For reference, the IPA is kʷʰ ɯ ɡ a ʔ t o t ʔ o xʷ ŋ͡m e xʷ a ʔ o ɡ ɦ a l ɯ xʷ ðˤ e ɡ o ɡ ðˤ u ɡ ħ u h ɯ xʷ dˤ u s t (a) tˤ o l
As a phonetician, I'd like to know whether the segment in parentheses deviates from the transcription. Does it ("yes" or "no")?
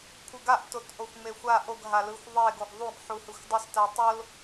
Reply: no